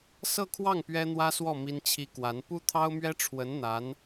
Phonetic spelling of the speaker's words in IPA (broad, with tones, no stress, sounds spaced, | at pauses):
s ɤ˥˧ kʰ w ɑ˥˩ ŋ p ɥ ɛ˥ n̪ w ä˥ s w ɔ˥˩ m i˥ n t͡ɕʰ i˥ k w a˧˥ n p u˥ t̪ʰ ɑ˥ ʊ̯ m ɥ ɛ˥ ʈ͡ʂʰ w ə˧˥ n n̪ a˧˥ n